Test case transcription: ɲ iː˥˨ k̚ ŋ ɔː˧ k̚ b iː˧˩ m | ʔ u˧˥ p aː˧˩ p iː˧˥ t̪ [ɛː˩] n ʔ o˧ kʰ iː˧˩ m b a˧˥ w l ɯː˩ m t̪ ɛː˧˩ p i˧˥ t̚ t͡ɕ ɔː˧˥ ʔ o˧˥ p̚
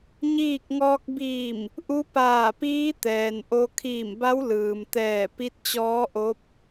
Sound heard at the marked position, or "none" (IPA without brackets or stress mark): ɛː˩